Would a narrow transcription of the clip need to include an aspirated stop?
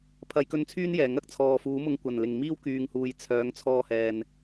yes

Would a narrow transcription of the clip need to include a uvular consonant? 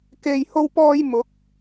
no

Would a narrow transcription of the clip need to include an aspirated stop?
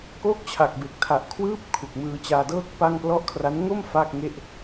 yes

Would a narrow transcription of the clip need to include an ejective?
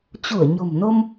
no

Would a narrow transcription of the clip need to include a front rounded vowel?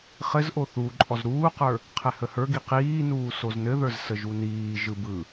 no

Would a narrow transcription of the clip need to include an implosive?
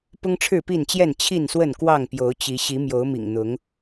no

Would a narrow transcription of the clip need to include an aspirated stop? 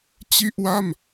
no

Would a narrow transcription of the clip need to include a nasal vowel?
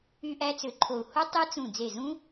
yes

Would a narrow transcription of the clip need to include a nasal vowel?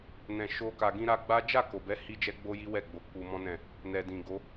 yes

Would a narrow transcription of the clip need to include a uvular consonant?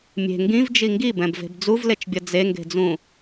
no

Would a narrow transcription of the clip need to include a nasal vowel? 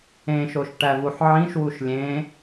yes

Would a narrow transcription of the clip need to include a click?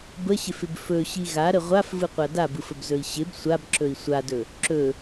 yes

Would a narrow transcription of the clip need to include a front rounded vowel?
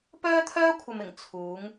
yes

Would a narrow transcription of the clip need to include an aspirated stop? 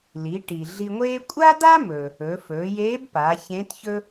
no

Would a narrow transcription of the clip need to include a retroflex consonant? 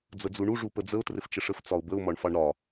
yes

